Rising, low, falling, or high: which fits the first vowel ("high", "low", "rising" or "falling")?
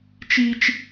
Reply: high